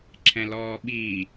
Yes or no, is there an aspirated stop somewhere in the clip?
yes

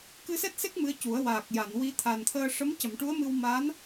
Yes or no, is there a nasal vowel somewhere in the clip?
no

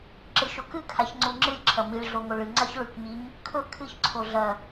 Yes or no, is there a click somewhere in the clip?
yes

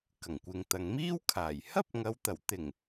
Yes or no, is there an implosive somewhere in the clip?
no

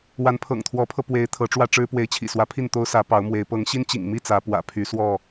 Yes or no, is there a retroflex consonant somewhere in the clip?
yes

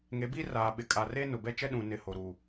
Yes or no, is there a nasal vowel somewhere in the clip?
yes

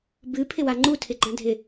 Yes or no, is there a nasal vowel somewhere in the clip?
yes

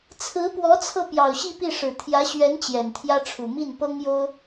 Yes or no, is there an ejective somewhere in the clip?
no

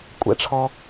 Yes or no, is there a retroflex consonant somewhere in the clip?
yes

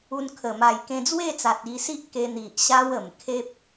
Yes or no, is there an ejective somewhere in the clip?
no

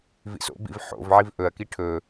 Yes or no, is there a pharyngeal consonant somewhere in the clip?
yes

